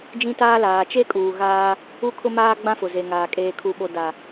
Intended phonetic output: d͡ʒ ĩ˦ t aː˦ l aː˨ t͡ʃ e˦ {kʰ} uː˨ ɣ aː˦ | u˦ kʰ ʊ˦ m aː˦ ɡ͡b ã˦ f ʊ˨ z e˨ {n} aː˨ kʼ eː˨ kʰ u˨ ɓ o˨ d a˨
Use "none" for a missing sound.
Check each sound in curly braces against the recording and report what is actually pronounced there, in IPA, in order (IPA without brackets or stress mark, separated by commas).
kʼ, ŋ